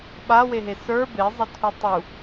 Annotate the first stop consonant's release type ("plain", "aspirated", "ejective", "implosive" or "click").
implosive